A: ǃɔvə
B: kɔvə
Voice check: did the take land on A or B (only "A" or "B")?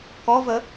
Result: B